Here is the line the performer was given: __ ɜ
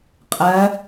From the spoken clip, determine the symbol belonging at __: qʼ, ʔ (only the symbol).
qʼ